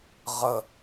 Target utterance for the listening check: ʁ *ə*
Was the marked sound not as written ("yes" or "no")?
no